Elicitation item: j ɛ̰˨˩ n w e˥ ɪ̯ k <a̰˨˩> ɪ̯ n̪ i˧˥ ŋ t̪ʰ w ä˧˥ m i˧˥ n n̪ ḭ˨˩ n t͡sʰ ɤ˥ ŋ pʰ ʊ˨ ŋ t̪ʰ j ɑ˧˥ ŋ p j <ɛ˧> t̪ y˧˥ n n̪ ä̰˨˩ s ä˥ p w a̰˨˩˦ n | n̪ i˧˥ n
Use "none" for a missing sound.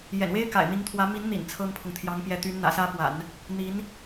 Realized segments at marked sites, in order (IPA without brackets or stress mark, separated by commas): a̰˨˩, ɛ˧˥